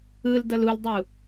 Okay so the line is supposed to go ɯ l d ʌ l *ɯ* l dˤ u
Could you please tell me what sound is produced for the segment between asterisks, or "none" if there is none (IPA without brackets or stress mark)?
u